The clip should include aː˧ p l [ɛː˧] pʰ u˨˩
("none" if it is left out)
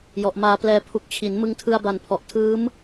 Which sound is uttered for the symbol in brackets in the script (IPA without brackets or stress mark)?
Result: ɛː˧